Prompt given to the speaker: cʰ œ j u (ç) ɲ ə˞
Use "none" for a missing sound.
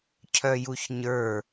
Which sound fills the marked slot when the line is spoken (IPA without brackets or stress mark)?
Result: ç